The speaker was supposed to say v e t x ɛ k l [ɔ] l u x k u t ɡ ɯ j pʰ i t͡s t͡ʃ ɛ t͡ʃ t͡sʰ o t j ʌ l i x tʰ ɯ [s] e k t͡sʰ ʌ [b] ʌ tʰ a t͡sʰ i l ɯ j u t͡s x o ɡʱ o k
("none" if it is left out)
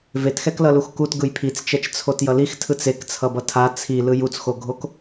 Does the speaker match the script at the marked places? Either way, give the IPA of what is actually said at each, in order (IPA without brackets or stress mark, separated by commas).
ʌ, t͡s, b